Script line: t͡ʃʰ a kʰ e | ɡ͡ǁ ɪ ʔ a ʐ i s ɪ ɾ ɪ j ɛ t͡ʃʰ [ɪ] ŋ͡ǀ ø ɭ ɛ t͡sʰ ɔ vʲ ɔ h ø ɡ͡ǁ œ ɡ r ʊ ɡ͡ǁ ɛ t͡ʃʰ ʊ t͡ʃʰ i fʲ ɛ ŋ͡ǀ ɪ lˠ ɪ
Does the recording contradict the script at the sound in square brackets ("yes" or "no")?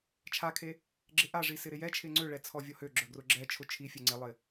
no